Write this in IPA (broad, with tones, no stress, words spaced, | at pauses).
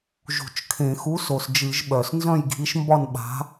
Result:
ʒṳ˧˩˧t͡ʃkʰẽ˧˩˧ xu˨˥so˩s d͡ʒɨ˧˩˧ʒɓœ˩s nzœ̃˥˨jɡʱi˨˥ʃmbɒ˥˨n ɓa̤˨˥